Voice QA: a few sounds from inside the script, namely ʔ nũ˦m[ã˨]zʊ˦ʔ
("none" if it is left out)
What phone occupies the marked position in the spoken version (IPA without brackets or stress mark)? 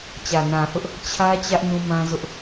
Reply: ã˦